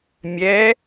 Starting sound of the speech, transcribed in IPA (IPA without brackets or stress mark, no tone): mʲ